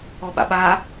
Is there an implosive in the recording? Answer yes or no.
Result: yes